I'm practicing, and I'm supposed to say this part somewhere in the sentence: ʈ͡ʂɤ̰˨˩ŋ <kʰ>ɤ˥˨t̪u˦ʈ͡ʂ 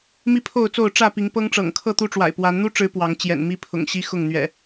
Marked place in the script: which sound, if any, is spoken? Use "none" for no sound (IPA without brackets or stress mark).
kʰ